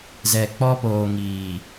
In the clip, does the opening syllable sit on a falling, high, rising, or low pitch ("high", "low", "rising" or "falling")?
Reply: low